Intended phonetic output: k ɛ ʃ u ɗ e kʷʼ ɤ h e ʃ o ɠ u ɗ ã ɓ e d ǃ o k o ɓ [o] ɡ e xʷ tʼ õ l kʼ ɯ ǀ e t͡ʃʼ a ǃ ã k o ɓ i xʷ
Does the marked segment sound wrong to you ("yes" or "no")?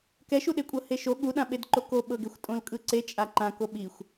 yes